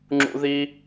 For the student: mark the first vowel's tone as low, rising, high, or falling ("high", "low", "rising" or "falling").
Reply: high